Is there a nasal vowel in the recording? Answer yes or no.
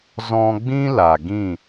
yes